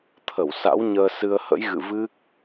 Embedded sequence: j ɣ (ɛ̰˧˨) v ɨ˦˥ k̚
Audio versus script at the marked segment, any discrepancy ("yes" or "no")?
yes